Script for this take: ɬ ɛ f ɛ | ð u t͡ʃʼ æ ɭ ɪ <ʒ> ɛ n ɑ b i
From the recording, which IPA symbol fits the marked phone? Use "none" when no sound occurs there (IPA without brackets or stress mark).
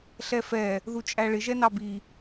ʒ